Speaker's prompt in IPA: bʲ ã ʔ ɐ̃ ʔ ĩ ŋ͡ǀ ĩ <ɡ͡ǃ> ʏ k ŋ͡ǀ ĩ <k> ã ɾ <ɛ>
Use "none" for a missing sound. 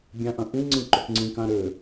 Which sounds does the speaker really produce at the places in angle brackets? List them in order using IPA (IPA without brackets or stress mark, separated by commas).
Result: ǃ, k, ʏ